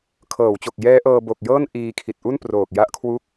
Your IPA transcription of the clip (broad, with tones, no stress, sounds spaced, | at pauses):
kʰ ɤː˩˦ w t͡ɕ o˨˩ k̚ j ɛː˦˥ ʔ ɤː˧ b o˨˩ k̚ j ɤː˥˩ n ʔ iː˧ kʰ i˨˩ t̚ ʔ u˥˩ n p r oː˨˩ k̚ j a˦˥ ʔ kʰ w u˦˥ k̚